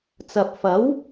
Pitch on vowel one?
low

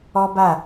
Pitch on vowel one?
high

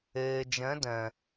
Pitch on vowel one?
low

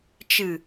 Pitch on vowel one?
low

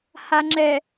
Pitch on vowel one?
low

